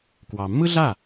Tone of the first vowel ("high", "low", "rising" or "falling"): low